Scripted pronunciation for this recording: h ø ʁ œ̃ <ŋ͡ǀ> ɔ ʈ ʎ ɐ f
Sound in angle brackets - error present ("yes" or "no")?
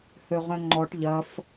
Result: yes